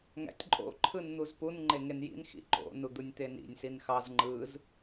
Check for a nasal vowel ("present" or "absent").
absent